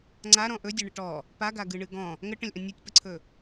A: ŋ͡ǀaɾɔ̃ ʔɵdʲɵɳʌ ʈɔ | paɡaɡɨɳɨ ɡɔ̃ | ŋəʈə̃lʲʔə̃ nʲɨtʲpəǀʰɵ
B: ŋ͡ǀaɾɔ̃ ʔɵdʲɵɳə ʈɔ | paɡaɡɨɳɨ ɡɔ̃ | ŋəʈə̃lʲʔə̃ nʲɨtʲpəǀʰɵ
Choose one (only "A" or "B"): B